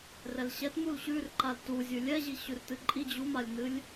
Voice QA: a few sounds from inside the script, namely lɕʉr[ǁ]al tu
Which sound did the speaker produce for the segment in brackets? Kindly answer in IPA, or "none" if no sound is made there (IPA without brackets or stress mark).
ǃ